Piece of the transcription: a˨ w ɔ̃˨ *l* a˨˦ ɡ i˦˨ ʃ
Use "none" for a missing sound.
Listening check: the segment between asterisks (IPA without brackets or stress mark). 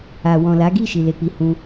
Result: l